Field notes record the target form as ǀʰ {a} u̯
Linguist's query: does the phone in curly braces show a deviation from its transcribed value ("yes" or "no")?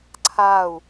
no